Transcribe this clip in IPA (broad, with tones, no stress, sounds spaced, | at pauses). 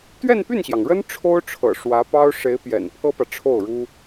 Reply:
t̪ ɥ ɛ˥˧ n p y˥˩ n ɕ j ɑ˩ ŋ ɻ ə˥ n ʈ͡ʂʰ o˥ ʊ̯ ʈ͡ʂʰ ɤ̰˨˩ ʂ w ä˧˥ p ɑ˥ ʊ̯ ʂ e˧˥ ɪ̯ p j ɛ̰˨˩ n pʰ ɤ˥ p ä˨ ʈ͡ʂʰ o˥˩ ʊ̯ ɻ u˥